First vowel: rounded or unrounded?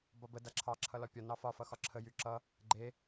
rounded